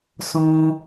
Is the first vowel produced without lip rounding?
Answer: no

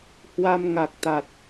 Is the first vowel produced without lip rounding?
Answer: yes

